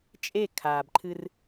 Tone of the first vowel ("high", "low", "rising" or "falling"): falling